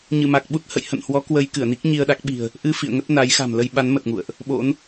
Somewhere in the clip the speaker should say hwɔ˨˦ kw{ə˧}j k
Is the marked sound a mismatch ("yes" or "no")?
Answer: no